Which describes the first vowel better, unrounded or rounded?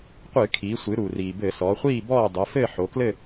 unrounded